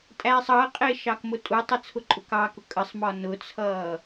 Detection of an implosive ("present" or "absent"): absent